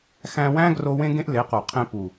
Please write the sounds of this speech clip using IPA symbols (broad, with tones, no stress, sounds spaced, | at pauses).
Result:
x æ̃˧ w æ̃˦ ɡ r o˧ w ẽ˦ ɡ ẽ˦ ʔ l e˨˦ q o˨ qʰ ẽ˧ p u˨